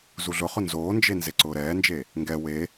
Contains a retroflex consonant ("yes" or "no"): no